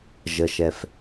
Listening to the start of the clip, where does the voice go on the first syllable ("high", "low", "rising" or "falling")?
low